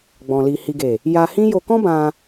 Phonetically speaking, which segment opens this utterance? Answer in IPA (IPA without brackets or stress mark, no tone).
ɡ͡b